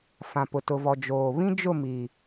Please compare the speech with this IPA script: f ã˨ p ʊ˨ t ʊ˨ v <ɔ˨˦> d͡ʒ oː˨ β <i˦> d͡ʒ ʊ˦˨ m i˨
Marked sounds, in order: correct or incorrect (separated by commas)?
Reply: incorrect, incorrect